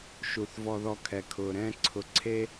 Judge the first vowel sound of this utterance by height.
high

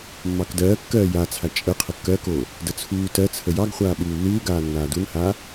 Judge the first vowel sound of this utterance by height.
low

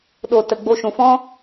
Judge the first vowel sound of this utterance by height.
mid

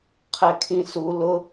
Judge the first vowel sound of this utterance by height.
mid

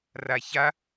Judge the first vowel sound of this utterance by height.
low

